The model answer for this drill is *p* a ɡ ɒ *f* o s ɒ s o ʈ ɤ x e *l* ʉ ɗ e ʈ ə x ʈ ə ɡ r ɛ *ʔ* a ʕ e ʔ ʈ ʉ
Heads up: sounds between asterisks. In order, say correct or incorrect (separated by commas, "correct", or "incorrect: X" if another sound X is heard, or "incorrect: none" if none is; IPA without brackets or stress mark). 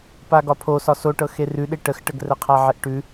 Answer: correct, incorrect: pʰ, incorrect: r, incorrect: qʰ